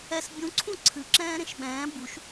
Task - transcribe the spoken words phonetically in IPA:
ɛs bʲũǀʰũ ǀʰɨǁɛ̃ː ɾẽʃɓɛ̃ː buʃ

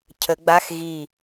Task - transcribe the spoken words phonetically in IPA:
cʰə˨˩˦ɡ͡ba˧˥˧x ɣi˧˩

